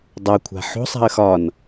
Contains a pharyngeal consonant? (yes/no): yes